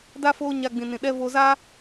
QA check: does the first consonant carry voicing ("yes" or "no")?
yes